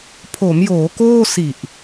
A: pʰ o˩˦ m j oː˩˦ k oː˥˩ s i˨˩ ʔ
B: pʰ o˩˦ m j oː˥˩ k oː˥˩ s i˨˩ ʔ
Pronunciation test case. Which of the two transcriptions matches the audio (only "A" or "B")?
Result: A